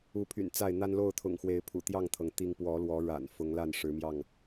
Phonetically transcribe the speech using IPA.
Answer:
u˨˦ pʰ y̰˨˩ n t͡s a˥˨ ɪ̯ n̪ a˦ n l o˥˨ ʊ̯ t̪ʰ ʊ̰˨˩ ŋ x w e˨˦ ɪ̯ pʰ ṵ˨˩ t̪ j ɑ˥˨ ŋ t̪ʰ ɤ˩ ŋ t̪ i˦ ŋ p w ɔ˨˦ l w ɔ˨˦ ɻ a̰˨˩ n f ʊ˨˦ ŋ l a˥˨ n ʂ ɻ̩˨˦ m j ɑ˥˨ ŋ

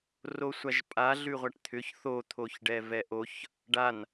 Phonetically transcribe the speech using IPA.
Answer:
r o sʷ a ʒ pʼ a ɮ ʉ ʁʷ a ʈ t̪ʰ ʏ ç θ o t̪ʰ o ç ɖ ɛ v ɛ ʔ o ç | ɖ a n

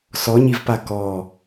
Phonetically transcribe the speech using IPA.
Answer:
s ɔ ɲ i v p a k ɔ

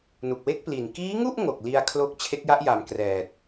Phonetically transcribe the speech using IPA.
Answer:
n u˨˩ k̚ w e˥˩ k̚ p l i˨˩ n k iː˦˥ ŋ u˥˩ ʔ ŋ o˨˩ k̚ l i˧ a̯ kʰ l o˦˥ k̚ t͡ɕʰ e˦˥ k̚ j a˦˥ ʔ j a˨˩ m k r ɛː˨˩ t̚

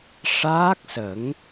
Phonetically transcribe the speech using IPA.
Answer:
ʂ aː˦˥ k̚ s ə˨˩˦ ŋ

